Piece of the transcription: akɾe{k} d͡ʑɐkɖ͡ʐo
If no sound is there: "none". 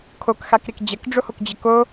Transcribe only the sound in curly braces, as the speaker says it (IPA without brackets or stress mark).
k